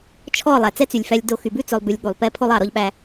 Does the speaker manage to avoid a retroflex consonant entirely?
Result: yes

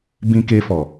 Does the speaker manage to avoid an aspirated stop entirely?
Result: yes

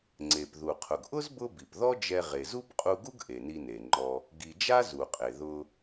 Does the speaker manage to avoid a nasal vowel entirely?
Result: yes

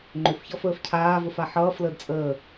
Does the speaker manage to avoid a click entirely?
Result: no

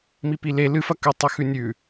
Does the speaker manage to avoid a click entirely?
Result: yes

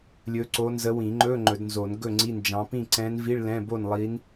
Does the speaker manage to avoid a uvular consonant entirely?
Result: yes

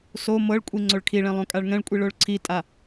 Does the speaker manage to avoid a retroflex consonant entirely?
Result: no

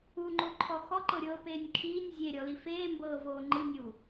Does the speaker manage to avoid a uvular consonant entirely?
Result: yes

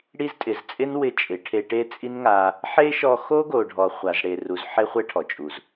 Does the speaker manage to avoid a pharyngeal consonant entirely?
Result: no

